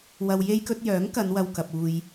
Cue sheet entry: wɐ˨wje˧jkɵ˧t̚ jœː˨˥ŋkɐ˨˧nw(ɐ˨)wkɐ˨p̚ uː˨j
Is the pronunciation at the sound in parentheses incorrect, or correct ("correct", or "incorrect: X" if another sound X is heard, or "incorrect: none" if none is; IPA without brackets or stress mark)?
correct